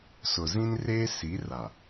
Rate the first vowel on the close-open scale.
close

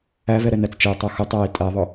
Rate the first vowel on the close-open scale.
open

